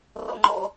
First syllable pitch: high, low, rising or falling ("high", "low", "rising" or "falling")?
high